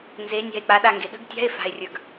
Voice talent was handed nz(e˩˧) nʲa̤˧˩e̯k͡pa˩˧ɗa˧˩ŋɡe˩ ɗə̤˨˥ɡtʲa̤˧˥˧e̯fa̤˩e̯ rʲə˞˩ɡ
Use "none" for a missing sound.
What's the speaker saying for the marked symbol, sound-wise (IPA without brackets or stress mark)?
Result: e˩˧